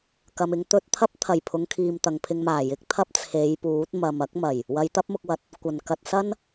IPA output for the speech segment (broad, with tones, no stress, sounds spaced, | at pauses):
k ɐ˨ m ɪ˧ ŋ t̪ ɵ˧ t̚ t̪ʰ ɐ˥ p̚ t̪ʰ ɐ˨˩ j pʰ ʊ˨˧ ŋ kʰ iː˨ m t̪ ɐ˨ ŋ pʰ ɪ˧ ŋ m aː˨˩ j ɪ˨˥ k̚ t̪ʰ ɐ˥ p̚ t͡sʰ e˨˧ j p uː˨˥ t̚ m ɐ˨ m ɐ˨˥ k̚ m ɐ˨˩ j | w ɐ˨˧ j t̪ ɐ˥ p̚ m ʊ˧ k̚ w ɐ˨˥ t̚ | kʷ ɐ˨˩ n k ɐ˨ t̚ s ɐ˥ n